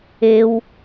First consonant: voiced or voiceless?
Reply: voiced